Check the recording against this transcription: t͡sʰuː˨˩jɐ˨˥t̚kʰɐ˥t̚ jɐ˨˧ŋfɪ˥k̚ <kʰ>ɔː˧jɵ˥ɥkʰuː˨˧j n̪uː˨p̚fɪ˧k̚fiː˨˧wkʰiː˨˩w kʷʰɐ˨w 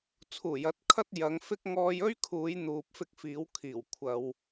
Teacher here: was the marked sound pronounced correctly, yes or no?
no